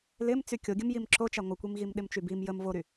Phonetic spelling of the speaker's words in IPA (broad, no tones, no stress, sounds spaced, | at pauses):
l ɪ m t͡s y kʲ o ɡʲ ə m j i m ǁ o t͡ʃ a ŋʷ ɪ kʷ i m ɣ i m ɗ ɪ m t͡ʃ y b i m j ə m v o ɾ y